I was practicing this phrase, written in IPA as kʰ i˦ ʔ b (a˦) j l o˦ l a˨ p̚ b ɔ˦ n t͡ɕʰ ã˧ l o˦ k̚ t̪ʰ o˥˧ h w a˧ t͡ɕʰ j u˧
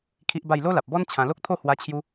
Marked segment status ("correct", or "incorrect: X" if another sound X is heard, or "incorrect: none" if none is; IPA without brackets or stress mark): incorrect: a˥˧